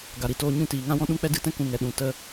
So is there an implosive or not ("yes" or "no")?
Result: yes